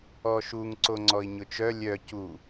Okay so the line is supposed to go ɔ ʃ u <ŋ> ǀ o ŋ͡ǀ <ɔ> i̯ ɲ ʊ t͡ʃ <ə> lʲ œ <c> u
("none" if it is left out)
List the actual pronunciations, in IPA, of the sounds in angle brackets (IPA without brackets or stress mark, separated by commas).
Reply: ŋ, ɔ, œ, c